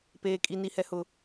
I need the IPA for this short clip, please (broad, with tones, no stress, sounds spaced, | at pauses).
p eː˨ kʼ i˨ n i˨ h ɛ˨ h ʊ˨